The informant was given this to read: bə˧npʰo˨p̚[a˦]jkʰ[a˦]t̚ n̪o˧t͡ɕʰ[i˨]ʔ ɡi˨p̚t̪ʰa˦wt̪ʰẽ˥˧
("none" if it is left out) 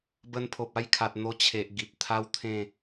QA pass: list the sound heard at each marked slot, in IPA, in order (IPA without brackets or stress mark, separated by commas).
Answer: a˥˧, a˨, e˨